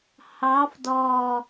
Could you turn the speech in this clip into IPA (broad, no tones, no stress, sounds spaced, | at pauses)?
h ɑ f d ɔ